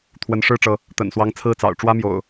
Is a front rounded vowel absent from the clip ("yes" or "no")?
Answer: yes